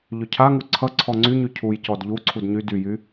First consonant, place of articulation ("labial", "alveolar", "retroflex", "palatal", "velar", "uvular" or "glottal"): palatal